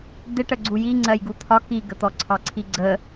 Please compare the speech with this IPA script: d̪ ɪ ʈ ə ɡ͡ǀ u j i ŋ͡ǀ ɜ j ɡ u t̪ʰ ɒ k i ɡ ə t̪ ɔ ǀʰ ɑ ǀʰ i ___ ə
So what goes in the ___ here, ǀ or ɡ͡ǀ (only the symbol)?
ɡ͡ǀ